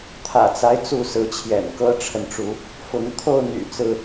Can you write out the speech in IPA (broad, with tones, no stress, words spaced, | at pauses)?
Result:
t̪ʰä̰˨˩t͡sa˦ɪ̯ t͡su˥˨sɹ̩˨˦t͡ɕʰjɛ̰˨˩n kɤ˦ʈ͡ʂʰə˨nʈ͡ʂu˨˦ | fʊ˨˦ŋ t̪ʰo˥˨ʊ̯n̪y̰˨˩ t͡sɹ̩˦